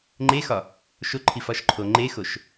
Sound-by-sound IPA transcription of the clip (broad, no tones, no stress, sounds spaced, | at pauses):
ŋ͡ǃ e x ɒ | ʃ o ǃʰ i f ɒ ʃ ǃʰ o ŋ͡ǃ e x o ʃ